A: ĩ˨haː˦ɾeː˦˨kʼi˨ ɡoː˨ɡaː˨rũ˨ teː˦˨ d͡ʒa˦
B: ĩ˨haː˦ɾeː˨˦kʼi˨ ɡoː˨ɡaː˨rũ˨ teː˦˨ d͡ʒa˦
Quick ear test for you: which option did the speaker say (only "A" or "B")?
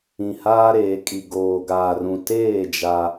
B